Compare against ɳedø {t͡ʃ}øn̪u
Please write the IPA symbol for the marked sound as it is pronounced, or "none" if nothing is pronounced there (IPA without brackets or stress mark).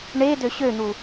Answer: ɕ